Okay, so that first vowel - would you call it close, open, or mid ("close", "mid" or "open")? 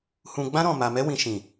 close